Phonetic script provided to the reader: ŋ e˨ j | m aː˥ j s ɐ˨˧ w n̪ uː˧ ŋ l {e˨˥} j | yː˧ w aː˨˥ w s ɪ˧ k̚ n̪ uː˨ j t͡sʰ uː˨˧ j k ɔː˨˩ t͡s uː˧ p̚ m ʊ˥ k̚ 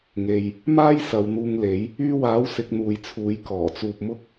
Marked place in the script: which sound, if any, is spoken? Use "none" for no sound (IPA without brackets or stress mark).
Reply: e˨˥